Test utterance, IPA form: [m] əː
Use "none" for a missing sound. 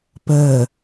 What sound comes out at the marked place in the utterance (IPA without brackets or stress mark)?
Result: p